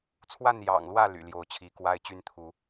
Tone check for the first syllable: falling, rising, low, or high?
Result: falling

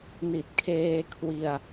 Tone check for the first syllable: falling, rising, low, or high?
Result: low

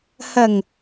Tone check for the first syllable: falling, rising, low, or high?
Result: low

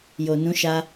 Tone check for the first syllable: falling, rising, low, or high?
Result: low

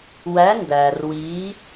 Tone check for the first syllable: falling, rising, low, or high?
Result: rising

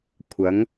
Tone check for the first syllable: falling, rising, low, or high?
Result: rising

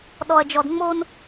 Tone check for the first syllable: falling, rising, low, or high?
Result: high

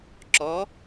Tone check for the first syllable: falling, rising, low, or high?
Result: rising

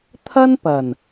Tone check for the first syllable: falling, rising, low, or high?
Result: high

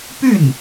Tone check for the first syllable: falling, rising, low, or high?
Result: falling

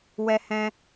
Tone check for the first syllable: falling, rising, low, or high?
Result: high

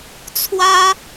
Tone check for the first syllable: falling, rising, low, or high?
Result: high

